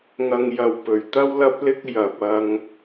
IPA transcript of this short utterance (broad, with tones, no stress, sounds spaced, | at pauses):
ŋ ɐ˨ ŋ j ɐ˨ w p ɵ˨ ɥ t̪ ɐ˥ w l ɐ˥ p̚ l ɪ˥ k̚ j ɐ˨ p̚ ɐ˧ ŋ